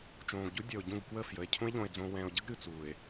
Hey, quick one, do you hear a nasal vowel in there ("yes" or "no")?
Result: yes